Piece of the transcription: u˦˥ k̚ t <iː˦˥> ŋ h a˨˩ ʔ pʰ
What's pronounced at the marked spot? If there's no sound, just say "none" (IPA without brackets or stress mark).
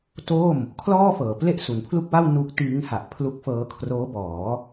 iː˦˥